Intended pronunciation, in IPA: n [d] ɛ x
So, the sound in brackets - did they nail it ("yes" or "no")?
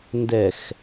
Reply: yes